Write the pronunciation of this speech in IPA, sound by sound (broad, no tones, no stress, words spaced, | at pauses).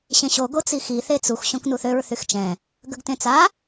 ɕẽɕo ɡot͡sixi θet͡sux ɕõknuθøɹ θyxt͡ʃɛ̃ | ɡəɡtẽt͡sa